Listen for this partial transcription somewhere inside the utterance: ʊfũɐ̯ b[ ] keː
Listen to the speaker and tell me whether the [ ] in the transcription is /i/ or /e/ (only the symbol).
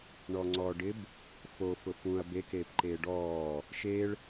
e